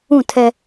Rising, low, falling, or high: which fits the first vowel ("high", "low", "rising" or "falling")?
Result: falling